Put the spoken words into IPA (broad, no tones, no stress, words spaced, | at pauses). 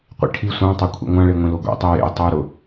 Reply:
qʷḭʈʰi sʷɑ̃ tˤakʷʰḭŋʷã ɭeŋʷẽloɡʷḛ tˤijḛj tˤojɾʊ